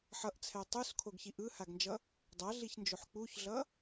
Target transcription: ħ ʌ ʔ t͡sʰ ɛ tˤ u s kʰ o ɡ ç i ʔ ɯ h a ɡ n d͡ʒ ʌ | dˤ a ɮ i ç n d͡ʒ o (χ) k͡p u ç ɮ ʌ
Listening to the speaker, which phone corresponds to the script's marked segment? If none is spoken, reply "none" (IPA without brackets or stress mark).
ħ